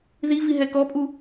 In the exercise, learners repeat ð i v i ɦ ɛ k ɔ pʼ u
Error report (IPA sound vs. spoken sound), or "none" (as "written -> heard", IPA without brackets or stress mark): none